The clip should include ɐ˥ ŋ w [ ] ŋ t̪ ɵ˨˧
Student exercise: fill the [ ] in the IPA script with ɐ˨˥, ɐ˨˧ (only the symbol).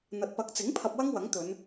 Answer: ɐ˨˥